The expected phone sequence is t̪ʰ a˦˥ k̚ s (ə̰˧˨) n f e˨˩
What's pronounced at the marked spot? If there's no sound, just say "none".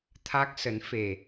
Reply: ə˨˦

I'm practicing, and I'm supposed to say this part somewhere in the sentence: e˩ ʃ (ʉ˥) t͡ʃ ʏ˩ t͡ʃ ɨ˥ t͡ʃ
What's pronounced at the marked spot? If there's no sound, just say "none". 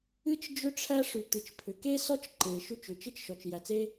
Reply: ʉ˥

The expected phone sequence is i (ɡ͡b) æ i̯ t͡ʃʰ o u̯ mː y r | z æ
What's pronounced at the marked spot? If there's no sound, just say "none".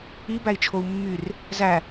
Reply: b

